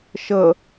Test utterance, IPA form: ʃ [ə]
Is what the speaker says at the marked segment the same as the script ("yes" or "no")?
yes